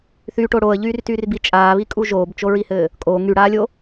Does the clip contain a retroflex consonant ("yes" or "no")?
yes